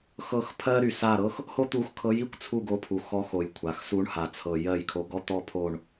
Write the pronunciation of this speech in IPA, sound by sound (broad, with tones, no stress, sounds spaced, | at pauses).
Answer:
x ɤ˦˨ x pʰ ɜ˥ ɾ y˩ s a˦˨ ɾ ɤ˥ x | h o˥ t̪ u˧˥ x kʰ ɤ˧˥ j i˥ kʷ t͡sʰ u˦˨ ɡ o˧˥ pʰ u˩ x ɔ˧˥ x o˩ j kʷʰ a˩ x s u˧˥ ɳ h a˩ t͡sʰ ɤ˩ j ɜ˦˨ j kʰ o˧˥ ɡ ɔ˥ t̪ ɔ˥ pʰ o˦˨ ɳ